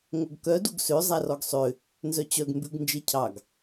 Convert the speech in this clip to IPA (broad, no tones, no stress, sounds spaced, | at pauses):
ŋ o ɡ k œ d u ɡ s ø zˤ æ r ɔ ɡ sˤ ø | n z œ t͡ɕ œ ɡ m b ʉ ɡ n d͡ʒ e cʰ ɑ ɡ